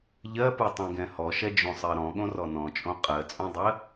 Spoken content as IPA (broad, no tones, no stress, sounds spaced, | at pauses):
ʎ ɜ p ɯ tˤ ẽ ɡ ɛ̃ h ɔ ʃ ɛ d͡ʒ õ sˤ ɜ ɾ ɔ̃ ɠ õ r ɔ n ɔ̃ t͡ʃʼ õ qʼ ɜ t͡sʼ õ dˤ ɜ